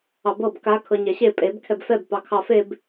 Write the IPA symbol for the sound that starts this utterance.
ɑ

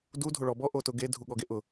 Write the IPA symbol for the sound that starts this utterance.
d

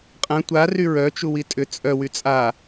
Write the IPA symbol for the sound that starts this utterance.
qʼ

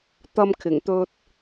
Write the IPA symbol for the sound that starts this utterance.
t̪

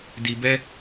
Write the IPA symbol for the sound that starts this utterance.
d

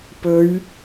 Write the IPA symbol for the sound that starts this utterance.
p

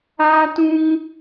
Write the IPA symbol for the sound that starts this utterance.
aː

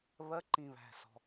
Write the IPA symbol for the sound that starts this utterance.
β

